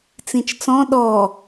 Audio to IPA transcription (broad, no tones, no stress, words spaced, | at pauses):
t͡sĩt͡ʃt͡sɔ̃ ɗɔ